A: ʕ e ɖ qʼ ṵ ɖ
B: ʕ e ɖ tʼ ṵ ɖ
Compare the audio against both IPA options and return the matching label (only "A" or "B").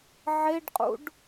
A